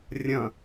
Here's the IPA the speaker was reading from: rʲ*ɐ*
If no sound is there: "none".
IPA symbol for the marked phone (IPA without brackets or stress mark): ɐ̃